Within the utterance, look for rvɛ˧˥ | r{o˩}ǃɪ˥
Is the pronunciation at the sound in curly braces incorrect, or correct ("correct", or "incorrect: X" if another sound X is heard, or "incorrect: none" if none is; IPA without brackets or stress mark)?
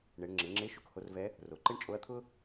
correct